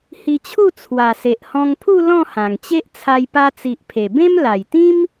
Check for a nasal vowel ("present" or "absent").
present